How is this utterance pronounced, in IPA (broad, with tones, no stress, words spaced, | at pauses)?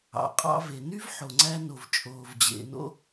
ɑ̰˩qʼɑ̰˧ve˩ny˥v ħo˩ŋ͡ǀæ˧no˩v t͡ʃʼoː˩vd͡ʑḛ˩no̰˧